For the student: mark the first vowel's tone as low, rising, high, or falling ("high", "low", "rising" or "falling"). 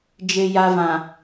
low